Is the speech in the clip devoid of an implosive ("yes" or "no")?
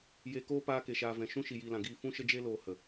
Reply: yes